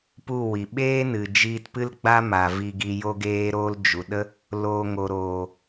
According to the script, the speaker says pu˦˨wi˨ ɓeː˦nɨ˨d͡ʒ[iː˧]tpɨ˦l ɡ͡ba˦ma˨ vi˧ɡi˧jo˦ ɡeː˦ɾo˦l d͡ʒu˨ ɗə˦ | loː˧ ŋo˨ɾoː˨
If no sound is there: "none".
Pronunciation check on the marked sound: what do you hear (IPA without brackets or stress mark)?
iː˧